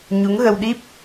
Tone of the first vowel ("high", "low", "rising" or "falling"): rising